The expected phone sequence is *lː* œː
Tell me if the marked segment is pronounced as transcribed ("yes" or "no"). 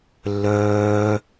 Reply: yes